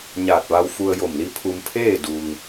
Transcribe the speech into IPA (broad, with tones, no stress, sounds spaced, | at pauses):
ɲ aː˧˩ t̚ ʋ a˧ w f u˧ ə̯ j o˧˩ m l i˧ pʰ u˧ m pʰ eː˥˨ d u˩ ŋ